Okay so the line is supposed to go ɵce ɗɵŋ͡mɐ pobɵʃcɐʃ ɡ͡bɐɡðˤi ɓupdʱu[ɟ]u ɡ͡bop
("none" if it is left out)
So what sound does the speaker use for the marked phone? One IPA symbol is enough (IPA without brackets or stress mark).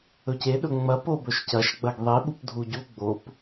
ɟ